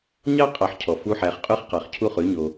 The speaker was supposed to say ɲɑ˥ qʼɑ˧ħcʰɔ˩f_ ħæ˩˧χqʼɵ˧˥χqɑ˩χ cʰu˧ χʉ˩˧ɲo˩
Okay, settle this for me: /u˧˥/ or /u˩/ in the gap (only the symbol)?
u˧˥